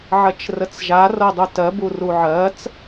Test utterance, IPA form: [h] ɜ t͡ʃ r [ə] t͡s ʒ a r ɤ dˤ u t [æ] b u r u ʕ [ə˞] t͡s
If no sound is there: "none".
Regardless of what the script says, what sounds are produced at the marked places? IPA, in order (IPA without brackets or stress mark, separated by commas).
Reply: ʕ, ə, ɜ, ɜ